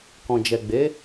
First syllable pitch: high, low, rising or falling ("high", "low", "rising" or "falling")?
low